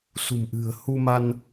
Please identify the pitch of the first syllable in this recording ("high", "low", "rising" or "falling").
low